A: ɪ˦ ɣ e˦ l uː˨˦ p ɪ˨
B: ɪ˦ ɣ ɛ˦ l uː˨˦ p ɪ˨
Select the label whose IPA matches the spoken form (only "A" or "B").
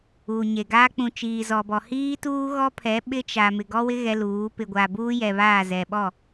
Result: B